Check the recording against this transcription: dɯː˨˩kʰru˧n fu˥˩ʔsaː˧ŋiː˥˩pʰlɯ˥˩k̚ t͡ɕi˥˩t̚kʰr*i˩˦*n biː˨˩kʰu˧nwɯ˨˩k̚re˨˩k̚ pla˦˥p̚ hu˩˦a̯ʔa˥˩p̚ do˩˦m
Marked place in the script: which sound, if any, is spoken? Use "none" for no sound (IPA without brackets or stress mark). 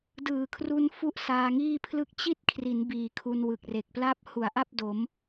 i˩˦